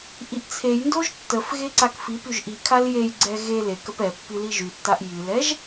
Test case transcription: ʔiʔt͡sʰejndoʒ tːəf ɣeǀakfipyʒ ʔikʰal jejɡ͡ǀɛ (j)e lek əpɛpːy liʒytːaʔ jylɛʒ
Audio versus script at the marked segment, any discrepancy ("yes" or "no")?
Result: yes